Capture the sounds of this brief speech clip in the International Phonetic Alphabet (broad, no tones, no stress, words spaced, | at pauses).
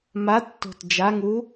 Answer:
matːo̤t d͡ʒaŋu